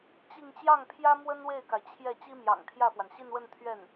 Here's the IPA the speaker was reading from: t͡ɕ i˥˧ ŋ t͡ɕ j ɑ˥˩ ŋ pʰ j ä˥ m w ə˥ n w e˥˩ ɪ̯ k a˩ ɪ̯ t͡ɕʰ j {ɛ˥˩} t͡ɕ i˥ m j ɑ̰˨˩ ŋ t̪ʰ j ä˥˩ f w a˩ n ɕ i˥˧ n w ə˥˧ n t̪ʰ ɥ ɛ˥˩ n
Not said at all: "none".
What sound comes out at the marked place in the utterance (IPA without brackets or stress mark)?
ɛ˥˩